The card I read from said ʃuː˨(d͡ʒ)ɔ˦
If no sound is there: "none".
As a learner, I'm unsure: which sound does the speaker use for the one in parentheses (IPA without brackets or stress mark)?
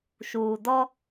d